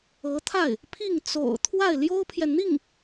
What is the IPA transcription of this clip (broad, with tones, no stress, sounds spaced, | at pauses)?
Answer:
ɤ˧˥ t̪ʰ a˥˩ ɪ̯ | pʰ i˥˩ ŋ t͡s o̰˨˩ ʊ̯ t̪ʰ w a˥˩ ɪ̯ l j o˥ ʊ̯ pʰ j ɛ˨ n n̪ i˥˩ ŋ